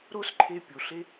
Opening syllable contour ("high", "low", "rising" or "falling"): high